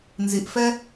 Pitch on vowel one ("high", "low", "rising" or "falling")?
low